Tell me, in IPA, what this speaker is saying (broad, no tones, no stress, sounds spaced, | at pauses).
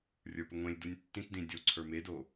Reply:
rʲ ə˞ p ɘ ŋʷ ẽ lʲ d u nʲ tː ĩ t d ĩ dʲ o ǀʰ ə˞ m e d o